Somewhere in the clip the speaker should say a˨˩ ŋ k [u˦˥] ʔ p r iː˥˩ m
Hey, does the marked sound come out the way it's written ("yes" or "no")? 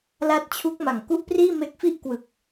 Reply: no